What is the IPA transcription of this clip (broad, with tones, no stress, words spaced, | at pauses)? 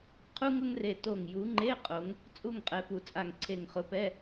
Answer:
qʰu˥ ŋʊ˥ŋre˧˩ to˧˩ŋju˨˦ŋ͡ǃe˧˥˧ qʼo˨˦ŋ | t͡sʼu˥˨ŋqʼɛ˨˦pu˧˩t͡sʼa˧˩ŋ ǀʰe˧˩ŋχʊ˨˦pɛ˧˥˧